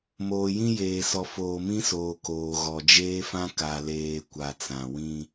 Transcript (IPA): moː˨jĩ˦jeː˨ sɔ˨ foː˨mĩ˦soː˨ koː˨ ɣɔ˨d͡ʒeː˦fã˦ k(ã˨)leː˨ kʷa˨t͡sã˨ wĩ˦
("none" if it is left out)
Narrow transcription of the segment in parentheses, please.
a˨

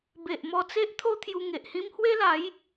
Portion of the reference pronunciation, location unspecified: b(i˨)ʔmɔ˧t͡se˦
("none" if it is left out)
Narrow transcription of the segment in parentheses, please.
e˨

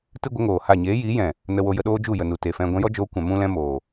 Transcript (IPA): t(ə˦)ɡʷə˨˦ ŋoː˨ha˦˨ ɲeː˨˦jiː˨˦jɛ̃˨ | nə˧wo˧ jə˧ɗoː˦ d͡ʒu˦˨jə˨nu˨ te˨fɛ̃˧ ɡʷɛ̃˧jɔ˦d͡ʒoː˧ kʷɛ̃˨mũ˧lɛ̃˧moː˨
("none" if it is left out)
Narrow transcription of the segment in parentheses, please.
ɨ˦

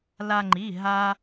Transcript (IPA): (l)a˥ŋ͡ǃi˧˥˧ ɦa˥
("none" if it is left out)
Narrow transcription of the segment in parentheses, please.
l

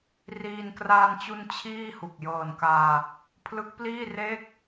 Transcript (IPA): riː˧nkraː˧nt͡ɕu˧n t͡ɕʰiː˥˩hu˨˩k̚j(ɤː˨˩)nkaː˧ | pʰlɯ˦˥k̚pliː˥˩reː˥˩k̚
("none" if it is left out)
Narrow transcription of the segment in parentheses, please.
ɤː˨˩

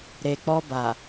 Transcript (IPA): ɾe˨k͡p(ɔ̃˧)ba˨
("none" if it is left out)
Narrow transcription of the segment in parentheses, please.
ɔ˧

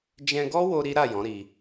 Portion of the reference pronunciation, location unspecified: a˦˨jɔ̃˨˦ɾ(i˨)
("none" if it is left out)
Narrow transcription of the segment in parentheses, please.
i˧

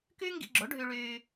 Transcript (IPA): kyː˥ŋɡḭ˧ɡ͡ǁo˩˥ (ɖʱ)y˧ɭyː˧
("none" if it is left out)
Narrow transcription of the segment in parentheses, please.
ɖʱ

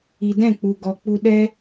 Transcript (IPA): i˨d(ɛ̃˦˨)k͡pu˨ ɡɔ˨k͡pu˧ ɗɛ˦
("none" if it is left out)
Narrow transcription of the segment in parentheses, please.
ɛ̃˦˨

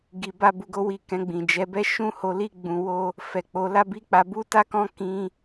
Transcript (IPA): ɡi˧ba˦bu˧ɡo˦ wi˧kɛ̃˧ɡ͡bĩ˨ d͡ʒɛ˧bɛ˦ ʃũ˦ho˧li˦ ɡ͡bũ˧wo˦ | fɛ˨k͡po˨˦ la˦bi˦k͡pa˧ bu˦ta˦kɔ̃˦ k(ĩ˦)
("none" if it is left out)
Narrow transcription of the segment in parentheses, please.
ĩ˦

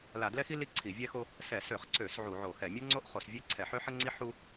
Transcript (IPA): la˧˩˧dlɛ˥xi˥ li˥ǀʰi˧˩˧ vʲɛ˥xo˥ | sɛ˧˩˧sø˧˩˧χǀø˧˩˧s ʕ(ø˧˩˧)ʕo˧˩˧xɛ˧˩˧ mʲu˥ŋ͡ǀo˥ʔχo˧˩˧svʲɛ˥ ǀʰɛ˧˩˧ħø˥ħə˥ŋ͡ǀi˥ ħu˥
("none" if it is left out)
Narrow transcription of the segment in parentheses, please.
u˧˩˧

